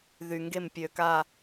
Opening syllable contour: low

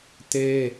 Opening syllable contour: high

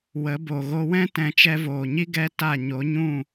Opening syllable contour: rising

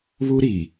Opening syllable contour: high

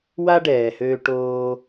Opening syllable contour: high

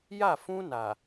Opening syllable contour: falling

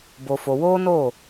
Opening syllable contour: low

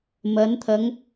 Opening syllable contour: rising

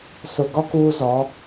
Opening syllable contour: low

